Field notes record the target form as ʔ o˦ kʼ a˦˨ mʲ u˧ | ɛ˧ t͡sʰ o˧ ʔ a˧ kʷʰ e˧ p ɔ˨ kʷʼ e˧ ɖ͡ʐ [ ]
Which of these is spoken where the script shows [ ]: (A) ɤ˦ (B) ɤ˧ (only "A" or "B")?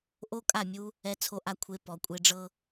A